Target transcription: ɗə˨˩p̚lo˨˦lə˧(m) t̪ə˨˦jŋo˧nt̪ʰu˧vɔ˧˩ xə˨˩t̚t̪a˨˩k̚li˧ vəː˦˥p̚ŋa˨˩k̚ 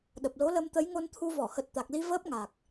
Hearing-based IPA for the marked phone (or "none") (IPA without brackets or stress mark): m